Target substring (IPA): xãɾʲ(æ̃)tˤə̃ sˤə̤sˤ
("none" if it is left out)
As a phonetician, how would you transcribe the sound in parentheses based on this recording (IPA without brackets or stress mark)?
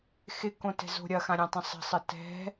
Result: ã